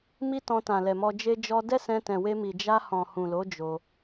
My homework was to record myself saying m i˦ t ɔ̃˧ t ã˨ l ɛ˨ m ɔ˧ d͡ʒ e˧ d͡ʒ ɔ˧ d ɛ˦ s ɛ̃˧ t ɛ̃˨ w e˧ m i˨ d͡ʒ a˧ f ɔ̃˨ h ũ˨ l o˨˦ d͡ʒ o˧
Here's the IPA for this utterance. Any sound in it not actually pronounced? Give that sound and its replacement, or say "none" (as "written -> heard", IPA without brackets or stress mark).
f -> h